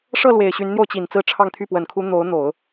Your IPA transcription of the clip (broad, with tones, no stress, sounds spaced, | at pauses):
ʂ ɤ˥˩ l w e˨˩ ɪ̯ ɕ y˧˥ n n̪ j o˧ ʊ̯ t͡ɕ i˨˩ n t͡s ɹ̩˥˧ ʈ͡ʂʰ ɑ˥˧ ŋ t̪ʰ y˥˩ p w ə˨˩ n kʰ u˧˥ n̪ o˧˥ ʊ̯ n̪ o˨˩˦ ʊ̯